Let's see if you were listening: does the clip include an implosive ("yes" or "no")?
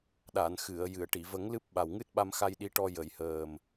yes